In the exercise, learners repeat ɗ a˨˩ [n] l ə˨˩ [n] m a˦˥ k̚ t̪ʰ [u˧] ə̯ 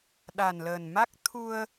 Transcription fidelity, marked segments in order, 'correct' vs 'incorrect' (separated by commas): correct, correct, correct